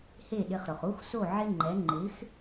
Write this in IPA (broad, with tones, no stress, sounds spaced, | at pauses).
h e˥˩ ɗ ɪ˧ χ ɾ ʊ˩ χ u˥ x s o˥˩ ʕ ɪ˥ ŋ͡ǃ ɛ˩˥ ŋ͡ǃ ɪ˩˥ x